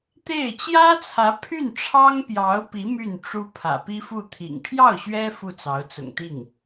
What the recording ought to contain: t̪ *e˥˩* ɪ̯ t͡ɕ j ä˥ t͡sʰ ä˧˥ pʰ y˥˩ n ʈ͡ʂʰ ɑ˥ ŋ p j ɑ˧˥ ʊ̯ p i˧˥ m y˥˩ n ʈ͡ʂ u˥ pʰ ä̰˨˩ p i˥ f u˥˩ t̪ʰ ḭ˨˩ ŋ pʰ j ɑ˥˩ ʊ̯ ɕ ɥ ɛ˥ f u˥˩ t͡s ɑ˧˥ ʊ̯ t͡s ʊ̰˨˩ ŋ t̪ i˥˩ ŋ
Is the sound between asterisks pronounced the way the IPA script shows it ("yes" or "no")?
yes